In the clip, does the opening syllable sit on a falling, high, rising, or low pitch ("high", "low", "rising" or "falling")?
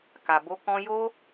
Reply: low